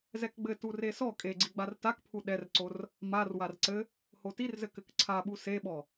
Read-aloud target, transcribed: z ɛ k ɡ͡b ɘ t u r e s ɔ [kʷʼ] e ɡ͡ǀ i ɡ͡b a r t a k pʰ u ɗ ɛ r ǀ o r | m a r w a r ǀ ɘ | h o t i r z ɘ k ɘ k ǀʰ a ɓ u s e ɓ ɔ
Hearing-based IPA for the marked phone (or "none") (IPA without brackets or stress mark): kʼ